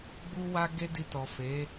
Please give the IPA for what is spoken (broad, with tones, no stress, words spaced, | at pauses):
ɡ͡bu˧wa˧ ɡe˦di˧tɔ˨fe˨˦